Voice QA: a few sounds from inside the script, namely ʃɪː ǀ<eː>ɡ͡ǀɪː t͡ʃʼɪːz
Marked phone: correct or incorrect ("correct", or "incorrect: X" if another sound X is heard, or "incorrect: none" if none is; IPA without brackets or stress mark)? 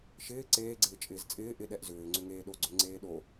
correct